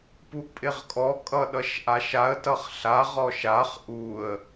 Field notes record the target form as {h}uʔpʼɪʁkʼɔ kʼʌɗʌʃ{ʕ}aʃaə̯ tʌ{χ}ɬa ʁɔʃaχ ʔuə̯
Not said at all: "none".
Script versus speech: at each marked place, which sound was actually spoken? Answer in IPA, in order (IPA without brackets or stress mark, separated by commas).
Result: p, ʔ, χ